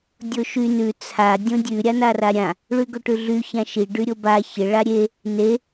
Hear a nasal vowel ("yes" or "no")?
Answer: yes